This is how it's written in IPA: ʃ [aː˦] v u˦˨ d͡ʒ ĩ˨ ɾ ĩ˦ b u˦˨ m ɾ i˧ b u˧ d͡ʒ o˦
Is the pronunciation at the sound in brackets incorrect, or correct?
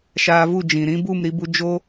incorrect: aː˧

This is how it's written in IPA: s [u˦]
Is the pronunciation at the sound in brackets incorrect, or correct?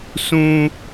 incorrect: ũ˦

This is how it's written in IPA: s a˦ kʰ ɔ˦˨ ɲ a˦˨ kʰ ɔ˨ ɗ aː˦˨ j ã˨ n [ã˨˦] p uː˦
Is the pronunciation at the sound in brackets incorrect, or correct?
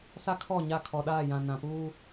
incorrect: ã˨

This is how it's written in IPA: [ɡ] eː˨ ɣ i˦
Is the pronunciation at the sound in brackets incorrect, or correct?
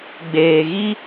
incorrect: ɡ͡b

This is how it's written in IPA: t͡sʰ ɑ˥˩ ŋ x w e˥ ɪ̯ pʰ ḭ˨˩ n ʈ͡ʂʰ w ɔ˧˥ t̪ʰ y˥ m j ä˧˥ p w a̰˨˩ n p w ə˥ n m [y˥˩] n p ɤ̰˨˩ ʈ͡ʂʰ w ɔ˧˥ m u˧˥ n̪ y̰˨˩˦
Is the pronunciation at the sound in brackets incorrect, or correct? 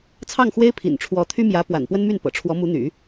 correct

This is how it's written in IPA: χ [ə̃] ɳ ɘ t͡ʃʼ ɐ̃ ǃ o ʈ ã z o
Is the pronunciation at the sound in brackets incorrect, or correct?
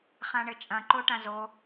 incorrect: ã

